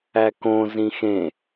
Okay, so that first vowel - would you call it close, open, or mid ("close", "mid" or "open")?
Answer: open